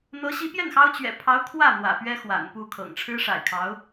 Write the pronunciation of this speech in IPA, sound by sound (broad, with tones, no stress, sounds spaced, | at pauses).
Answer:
n̪ ɤ˧˥ ɕ i˧˥ p j ɛ˥˩ n x ɑ˥ ʊ̯ t͡ɕ ɥ ɛ̰˨˩ pʰ ɑ˧˥ ʊ̯ kʰ w ä˥˩ n̪ w ä̰˨˩ p ɥ ɛ˥ x w a̰˨˩ n p u˥˩ kʰ ɤ̰˨˩ ŋ ʈ͡ʂʰ ɻ̩˥ ʂ a̰˨˩ ɪ̯ kʰ ɑ˧˥ ʊ̯